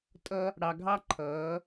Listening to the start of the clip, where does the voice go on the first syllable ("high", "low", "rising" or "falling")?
high